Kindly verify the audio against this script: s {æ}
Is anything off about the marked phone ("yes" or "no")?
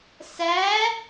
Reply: no